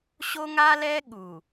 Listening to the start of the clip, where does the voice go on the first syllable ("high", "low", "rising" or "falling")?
high